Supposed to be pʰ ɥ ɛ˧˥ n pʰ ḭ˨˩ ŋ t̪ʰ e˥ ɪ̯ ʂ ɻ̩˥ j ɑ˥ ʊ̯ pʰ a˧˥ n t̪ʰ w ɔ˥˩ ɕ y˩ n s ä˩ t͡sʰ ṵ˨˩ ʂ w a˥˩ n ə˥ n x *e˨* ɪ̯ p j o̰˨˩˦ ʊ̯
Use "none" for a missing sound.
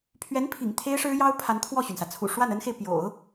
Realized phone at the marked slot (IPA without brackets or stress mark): e˨